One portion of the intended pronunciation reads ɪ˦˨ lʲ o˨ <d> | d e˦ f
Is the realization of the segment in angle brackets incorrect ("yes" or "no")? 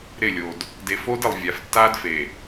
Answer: no